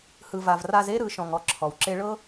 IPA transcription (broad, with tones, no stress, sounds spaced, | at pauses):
h ɯ˨ v a˨ v r a˧ z e˦ ɾ ɯ˨˦ ʃ ɔ̃˨ ŋ ɔ˧ ǁʰ ɔ˨ w ǁ e˦ ɭ ɤ˦